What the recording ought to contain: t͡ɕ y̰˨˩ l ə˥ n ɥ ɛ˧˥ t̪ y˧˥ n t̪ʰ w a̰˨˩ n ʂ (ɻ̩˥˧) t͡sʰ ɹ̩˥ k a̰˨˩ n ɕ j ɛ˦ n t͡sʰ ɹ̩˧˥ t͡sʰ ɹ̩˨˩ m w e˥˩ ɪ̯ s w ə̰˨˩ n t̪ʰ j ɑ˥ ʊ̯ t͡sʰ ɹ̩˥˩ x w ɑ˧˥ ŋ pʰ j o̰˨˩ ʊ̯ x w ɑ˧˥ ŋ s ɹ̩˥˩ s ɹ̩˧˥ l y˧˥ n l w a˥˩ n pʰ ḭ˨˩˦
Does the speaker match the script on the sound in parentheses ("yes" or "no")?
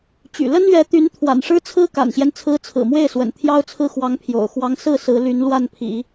no